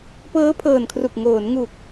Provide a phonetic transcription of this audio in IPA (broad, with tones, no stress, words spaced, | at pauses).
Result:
pɤː˦˥pʰɤː˨˩nkʰru˨˩k̚ ŋoː˩˦nŋu˨˩k̚